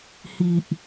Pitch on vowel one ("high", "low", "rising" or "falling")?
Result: low